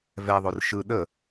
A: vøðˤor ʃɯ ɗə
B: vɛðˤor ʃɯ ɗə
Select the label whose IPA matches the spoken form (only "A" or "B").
B